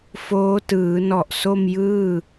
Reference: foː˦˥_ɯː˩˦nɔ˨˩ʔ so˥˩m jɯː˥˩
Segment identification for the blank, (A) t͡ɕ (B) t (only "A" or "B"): B